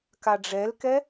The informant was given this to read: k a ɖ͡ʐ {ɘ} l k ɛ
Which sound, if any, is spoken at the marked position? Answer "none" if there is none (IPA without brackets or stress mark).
ɛ